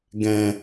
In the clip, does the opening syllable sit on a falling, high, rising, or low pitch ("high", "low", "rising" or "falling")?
low